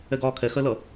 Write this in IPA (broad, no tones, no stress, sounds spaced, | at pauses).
ɛ ɡ ɒː kʰ ɛ x ɜ l ʌ